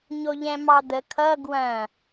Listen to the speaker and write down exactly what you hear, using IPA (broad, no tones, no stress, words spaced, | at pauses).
ɲoʎɛ̃mɑd̪ə kʰʌ ɡwɐ̃